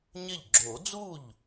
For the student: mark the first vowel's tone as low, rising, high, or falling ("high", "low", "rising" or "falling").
falling